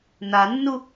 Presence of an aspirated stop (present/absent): absent